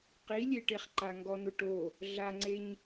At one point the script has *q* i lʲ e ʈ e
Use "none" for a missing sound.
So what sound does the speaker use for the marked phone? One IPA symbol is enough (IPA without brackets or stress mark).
q